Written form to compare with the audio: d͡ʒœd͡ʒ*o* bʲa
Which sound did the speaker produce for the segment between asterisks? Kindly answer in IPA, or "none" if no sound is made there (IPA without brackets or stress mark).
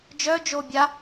o